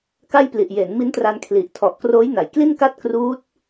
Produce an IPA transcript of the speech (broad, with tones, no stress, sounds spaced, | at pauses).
k a˥˩ j p l i˨˩ ʔ j e˩˦ n m i˦˥ n t r a˧ n kʰ l i˨˩ ʔ tʰ ɔ˨˩ ʔ k r oː˦˥ j n a˩˦ j k l i˥˩ n k a˥˩ t̚ k r uː˦˥ t̚